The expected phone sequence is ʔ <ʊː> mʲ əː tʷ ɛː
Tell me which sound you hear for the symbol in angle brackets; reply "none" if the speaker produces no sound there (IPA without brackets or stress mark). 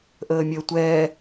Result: əː